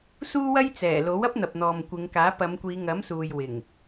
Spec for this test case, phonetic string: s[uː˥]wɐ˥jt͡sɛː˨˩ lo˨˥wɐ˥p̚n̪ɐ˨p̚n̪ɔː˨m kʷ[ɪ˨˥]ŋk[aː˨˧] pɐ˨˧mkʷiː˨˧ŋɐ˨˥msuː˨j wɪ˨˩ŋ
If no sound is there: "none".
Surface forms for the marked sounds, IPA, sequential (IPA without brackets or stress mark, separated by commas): uː˥, ɪ˨˧, aː˨˥